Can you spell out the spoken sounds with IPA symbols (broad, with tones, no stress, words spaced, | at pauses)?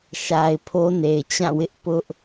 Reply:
ʃa˨ɪ̯ pʰo˦ne˨ɪ̯t͡ɕã˦˨wɪ˦ʔ pʊ˦ʔ